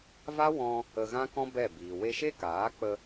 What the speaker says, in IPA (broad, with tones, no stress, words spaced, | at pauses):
va˦wɔ̃˧ | ə˧ɣã˦kɔ̃˦ bɛ˦˨biː˨ we˧ʃe˦kaː˨˦k͡pə˧